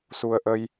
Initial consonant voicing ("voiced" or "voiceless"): voiceless